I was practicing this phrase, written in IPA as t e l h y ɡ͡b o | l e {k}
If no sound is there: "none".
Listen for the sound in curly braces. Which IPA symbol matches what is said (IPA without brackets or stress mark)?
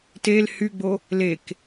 k